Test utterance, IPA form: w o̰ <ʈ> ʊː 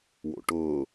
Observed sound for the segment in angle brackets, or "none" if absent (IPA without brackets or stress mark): ʈ